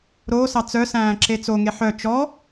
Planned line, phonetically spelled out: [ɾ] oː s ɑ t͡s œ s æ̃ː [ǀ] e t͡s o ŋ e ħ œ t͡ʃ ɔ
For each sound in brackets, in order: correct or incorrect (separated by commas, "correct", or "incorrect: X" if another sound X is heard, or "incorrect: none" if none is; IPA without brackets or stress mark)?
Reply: correct, incorrect: ǁ